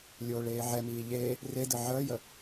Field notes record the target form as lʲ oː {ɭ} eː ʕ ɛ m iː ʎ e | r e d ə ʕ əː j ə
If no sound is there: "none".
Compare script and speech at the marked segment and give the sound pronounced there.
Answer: ɭ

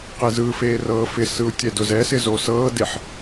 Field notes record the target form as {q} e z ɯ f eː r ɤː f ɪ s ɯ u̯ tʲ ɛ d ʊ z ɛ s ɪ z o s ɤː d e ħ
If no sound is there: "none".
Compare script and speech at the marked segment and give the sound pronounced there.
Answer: q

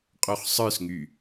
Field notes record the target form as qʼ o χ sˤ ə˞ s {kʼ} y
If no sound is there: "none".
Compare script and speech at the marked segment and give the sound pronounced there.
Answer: ŋ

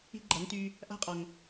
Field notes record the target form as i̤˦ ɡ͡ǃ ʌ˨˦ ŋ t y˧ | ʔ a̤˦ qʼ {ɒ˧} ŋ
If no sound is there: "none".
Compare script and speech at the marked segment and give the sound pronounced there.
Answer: ɒ˨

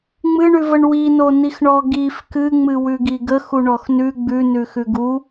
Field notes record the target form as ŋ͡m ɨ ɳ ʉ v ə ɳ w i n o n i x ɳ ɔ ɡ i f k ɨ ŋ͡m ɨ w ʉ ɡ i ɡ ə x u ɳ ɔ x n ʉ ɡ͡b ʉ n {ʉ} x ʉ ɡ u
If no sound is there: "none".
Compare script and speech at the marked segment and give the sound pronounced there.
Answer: ʉ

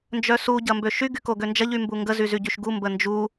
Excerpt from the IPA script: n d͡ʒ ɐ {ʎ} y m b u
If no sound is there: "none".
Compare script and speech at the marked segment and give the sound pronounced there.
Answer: ʎ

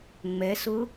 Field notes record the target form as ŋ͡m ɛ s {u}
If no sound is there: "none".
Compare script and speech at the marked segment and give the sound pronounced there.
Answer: ʊ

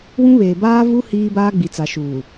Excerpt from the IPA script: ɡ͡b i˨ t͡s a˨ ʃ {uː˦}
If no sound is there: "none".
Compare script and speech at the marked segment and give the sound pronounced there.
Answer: uː˨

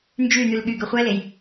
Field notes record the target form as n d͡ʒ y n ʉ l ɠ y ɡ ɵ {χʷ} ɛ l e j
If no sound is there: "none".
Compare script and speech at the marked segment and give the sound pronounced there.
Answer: χʷ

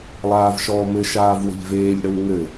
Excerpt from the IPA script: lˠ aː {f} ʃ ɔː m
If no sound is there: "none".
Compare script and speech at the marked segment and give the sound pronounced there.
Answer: v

